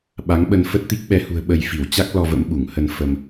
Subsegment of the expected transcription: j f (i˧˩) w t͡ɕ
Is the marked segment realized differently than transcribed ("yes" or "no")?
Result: no